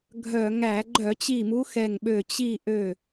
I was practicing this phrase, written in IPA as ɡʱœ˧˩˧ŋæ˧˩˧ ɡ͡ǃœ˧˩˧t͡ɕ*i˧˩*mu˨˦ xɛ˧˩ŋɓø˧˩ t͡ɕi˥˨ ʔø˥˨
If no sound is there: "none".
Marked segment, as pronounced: i˧˩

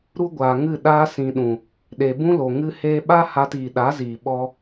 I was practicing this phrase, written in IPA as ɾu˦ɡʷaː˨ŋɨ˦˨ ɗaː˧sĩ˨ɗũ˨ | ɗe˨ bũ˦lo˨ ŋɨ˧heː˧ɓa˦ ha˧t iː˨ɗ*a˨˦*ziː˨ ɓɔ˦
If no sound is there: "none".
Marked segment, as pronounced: a˨˦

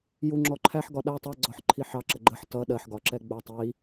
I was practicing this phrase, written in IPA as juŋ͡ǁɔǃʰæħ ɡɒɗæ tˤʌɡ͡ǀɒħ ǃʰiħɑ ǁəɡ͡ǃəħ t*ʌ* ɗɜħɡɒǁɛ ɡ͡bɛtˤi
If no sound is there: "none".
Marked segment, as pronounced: ʌ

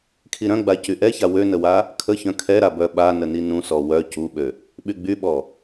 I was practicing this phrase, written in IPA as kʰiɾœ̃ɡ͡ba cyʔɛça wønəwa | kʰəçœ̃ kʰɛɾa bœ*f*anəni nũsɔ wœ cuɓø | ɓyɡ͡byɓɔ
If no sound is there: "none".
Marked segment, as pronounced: ɓ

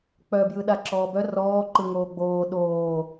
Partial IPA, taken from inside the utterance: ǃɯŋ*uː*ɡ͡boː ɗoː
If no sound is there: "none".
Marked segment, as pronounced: oː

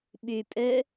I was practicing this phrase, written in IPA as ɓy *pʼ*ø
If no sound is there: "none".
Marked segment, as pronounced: pʼ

